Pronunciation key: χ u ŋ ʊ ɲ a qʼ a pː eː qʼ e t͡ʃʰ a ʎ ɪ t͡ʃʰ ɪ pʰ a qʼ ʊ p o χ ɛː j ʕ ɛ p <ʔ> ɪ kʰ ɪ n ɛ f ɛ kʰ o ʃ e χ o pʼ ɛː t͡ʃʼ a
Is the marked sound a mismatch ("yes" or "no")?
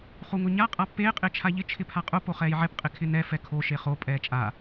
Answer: yes